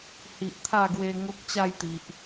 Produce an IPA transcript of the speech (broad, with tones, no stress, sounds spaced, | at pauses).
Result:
h i˨ ʔ t̪ʰ a˥˧ ɡ w e˧ ŋ o˦ k̚ t͡ɕ a˥˧ j t̪ i˨ ʔ